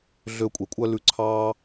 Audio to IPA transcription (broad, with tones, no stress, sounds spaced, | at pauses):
ɮ ø˧ kʷʼ e˨ kʷʼ œ˦ l ʉ˧ ǀʰ ɑ˦